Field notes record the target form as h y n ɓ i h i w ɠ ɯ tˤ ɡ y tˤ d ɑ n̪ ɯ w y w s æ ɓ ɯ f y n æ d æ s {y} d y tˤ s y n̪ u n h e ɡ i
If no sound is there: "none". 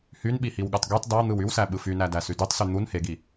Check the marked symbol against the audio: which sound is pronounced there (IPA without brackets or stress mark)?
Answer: y